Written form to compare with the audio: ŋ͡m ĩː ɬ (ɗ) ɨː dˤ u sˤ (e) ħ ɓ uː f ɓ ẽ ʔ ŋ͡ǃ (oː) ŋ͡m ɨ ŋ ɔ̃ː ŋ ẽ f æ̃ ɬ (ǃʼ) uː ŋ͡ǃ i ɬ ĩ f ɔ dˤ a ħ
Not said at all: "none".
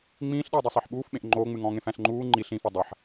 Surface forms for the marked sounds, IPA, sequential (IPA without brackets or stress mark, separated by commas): ɗ, e, oː, ŋ͡ǃ